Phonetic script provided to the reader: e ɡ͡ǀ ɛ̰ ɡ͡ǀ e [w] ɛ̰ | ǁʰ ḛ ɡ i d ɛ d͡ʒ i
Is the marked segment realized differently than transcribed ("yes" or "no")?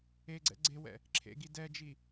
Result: no